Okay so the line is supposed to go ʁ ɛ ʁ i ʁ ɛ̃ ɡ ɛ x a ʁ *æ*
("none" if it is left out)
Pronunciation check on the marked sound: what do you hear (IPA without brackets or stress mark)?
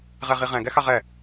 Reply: ɛ